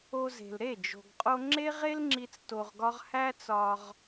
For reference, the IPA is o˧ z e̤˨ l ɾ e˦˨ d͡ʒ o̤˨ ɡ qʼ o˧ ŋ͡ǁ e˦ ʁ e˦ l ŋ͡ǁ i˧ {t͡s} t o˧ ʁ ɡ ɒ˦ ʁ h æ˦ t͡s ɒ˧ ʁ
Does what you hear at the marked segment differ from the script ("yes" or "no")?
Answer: no